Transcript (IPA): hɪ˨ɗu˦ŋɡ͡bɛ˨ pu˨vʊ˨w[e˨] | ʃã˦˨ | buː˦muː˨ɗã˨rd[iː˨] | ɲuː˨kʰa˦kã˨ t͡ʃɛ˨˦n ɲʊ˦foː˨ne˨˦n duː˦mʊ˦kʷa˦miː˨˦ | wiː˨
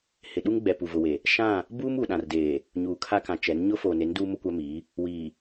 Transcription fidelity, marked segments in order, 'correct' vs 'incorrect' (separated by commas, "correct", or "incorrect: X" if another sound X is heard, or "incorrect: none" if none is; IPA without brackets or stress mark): correct, incorrect: eː˨